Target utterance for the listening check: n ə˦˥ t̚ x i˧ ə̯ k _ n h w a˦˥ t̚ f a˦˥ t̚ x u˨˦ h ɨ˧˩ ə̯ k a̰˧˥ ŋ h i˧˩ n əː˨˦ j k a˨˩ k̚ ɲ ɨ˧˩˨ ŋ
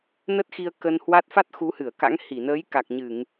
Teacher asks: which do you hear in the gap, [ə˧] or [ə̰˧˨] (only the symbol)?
ə˧